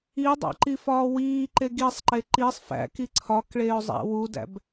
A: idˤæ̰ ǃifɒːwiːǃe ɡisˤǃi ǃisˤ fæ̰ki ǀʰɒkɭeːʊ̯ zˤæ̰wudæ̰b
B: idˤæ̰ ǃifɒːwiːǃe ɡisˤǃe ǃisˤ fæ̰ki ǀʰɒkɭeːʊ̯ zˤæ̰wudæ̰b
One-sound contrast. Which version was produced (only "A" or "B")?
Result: B